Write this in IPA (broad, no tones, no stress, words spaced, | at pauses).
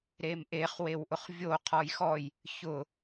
ɾemʔeχ wewʔʊχvʲo qʰɔjxɔj | çʊ